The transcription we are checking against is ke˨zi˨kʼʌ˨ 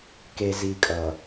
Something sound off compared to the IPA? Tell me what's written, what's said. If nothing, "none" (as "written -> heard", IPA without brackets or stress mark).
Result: none